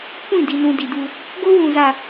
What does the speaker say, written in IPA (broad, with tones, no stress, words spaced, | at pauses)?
kʷĩ˦˨di˨nũ˨ di˨du˦ | ɡo˦wũ˨za˨